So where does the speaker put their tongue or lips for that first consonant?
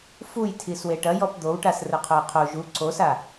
lips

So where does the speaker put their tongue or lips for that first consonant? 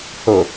throat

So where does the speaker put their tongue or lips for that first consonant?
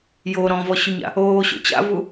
palate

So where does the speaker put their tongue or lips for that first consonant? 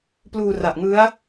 lips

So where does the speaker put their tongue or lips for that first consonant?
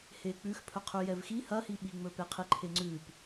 throat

